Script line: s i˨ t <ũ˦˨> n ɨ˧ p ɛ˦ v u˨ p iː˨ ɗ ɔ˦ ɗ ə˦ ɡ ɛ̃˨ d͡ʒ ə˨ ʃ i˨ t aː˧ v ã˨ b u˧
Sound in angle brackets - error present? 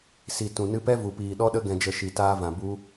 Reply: yes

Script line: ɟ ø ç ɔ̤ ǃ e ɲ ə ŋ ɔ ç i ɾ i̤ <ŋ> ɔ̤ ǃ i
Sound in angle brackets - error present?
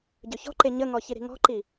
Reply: no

